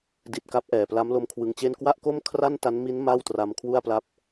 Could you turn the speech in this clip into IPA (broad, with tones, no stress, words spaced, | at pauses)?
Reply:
di˨˩t̚ ka˦˥p̚ʔɛː˨˩pla˦˥m lo˦˥mkʰwɯ˧ŋt͡ɕe˥˩n kwa˥˩ʔko˥˩mkʰra˥˩n ta˦˥nmi˦˥n ma˥˩wtra˧m kʰwu˥˩a̯pla˦˥p̚